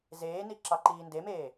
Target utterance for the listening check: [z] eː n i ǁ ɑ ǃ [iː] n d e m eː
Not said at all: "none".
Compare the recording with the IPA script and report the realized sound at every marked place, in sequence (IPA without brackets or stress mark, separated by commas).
z, iː